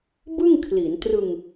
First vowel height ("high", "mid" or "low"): high